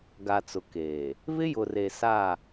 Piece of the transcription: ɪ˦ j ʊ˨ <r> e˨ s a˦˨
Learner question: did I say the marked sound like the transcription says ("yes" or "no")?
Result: yes